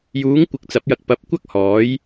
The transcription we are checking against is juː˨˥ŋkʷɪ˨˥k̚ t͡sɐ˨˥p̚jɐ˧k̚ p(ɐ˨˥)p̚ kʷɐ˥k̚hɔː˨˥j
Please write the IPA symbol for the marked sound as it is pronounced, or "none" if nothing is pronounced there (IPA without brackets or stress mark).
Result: ɐ˨˥